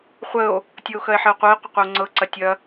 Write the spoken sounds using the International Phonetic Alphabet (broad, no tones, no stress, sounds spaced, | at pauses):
χʷ ə o̯ | tʲ ɤ o̯ x ɐ e̯ ħ ɪ o̯ qʷ œ e̯ qʷ ɪ qʷ ə o̯ ŋ͡ǀ ɤ ǀ ɐ tʲ ɐ